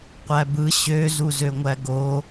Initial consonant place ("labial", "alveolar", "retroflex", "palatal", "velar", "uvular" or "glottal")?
uvular